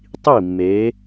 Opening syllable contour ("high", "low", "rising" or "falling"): falling